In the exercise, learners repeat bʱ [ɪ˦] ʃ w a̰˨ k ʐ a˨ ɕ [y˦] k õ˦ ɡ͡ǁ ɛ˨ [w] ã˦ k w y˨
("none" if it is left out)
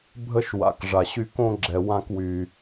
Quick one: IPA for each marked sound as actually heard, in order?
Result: ə˦, y˦, w

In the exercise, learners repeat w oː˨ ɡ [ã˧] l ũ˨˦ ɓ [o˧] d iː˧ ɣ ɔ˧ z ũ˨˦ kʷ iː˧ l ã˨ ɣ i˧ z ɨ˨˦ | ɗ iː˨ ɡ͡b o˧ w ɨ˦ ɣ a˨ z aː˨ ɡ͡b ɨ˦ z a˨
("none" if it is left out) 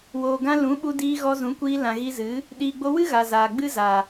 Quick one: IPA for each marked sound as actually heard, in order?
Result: ã˧, u˧

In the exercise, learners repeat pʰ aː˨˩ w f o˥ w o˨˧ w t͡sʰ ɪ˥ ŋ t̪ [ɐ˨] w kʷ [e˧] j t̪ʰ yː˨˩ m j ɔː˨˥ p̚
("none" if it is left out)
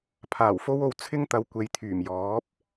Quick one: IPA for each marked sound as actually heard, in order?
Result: ɐ˨, e˨

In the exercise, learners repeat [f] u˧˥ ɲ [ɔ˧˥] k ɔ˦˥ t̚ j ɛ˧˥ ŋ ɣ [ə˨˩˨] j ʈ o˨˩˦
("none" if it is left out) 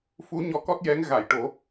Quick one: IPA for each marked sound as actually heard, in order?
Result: f, ɔ˧˥, a˨˩˨

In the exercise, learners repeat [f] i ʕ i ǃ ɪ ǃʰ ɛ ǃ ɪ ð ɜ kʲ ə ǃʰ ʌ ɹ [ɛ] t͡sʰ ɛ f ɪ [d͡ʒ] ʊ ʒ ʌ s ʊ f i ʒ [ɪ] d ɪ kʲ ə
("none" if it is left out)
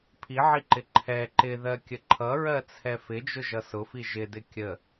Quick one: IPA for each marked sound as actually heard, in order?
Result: pʰ, ɜ, d͡ʒ, ɪ

